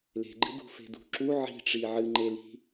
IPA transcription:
le̤ɡ͡ǃɨ dṳfe̤dṳǁu ʕi̤ʈ͡ʂi ʕɨŋ͡ǃeli̤

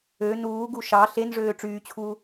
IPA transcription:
ø nuːɡu ʃɑ ɬenʐøː ʈ͡ʂyːt͡ɕʰuː

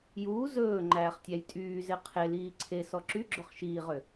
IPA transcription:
juː zɵː ŋ͡ǃæːχtʲæjtʼyːze qʰeliː ǀʰesɔ ǁyɡ͡ǁɵχ ʃiːʁø

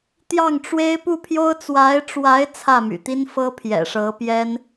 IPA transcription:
t̪jɑ˥˩ŋʈ͡ʂwe˥ɪ̯ pu˥˩pʰjo˥ʊ̯ t͡swa˧˥ɪ̯ʈ͡ʂwa˧˥ɪ̯ t͡sʰä˥˩my̰˨˩t̪i˥nfɤ˥ pʰjɛ̰˨˩ʂɤ˧˥ pjɛ˥n

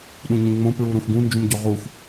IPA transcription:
ɗũɲũŋ͡mõ pɹuɾũxɡũ nd͡ʒũmɟoʁux

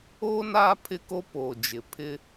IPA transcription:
o˦ na˦ pʰɪ˦ko˦poː˨d͡ʒɪ˨ pʰɪ˦

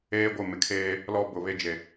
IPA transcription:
eː˦ɡʷɪ˦˨mɪ˨kʰeː˦ | lɔ˦bʊ˨ βe˦ d͡ʒe˨

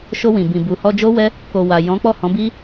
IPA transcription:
ʃo˧wĩ˨ bĩ˨bu˨ hɔ˧d͡ʒo˦wɛ˦ | ko˨ wa˨ jɔ̃˨˦k͡pɔ˦˨hɔ̃˨˦ bi˦

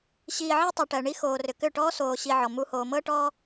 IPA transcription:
ɕiː˨ ʕi˦tˤu˨ʈɜ˨ɳi˦ xoː˨rʏ˨kʏ˦˨ ʈɔː˦soː˨ɕi˨ ʕɔ˨mu˦ hoː˨mɤ˦ʈɔː˦

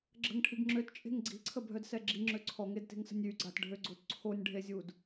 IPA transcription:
ɡ͡ǁə̤ŋʈʰiɡ ŋ͡ǁøtt͡ʃʼe̤ŋ ɡ͡ǀi̤ǀʰəbʱœdsɛ ɡ͡ǁiŋ͡ǁø ǀʰɔŋedte̤ŋsə̤nʲ yɡ͡ǀatɖʱøɡ͡ǀot ǀʰonʲɖʱezʲud

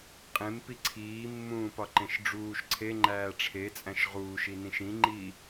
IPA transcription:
qʼẽmpi ǀʰiːmːũːpɒǃẽʃ ɖ͡ʐuːʃ ǀʰeŋ͡ǃæː ʈ͡ʂʰet͡sʼæ̃ʃ ʁuːʃinĩʃ ĩŋ͡ǃi

